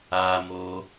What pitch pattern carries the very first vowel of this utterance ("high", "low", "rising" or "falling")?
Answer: high